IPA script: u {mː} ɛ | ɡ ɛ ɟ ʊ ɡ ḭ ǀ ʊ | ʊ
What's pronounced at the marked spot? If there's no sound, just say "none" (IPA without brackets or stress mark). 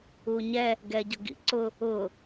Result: ɲ